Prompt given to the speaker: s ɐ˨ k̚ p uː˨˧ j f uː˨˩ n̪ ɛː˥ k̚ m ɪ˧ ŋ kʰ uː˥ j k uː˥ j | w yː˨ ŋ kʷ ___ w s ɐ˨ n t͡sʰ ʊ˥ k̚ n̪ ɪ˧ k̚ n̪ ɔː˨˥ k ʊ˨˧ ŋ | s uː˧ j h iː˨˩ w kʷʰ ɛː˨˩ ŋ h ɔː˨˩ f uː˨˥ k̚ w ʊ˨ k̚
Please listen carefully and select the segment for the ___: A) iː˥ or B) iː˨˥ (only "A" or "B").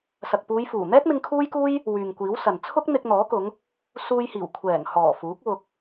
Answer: B